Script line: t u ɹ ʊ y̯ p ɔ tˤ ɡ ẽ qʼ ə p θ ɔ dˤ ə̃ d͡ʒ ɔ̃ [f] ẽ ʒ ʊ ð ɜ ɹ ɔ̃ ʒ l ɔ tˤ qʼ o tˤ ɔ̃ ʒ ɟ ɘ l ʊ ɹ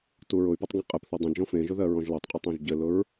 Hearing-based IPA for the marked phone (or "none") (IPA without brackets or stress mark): f